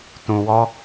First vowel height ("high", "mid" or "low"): high